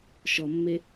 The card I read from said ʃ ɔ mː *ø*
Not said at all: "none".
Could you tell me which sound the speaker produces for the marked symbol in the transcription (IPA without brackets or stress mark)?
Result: e